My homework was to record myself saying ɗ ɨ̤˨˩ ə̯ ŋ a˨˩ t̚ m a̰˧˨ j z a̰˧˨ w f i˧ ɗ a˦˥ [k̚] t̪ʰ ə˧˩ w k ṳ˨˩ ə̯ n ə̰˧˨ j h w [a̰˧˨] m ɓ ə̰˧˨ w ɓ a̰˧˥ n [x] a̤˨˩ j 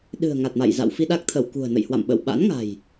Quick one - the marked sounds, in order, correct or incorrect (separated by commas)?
correct, correct, incorrect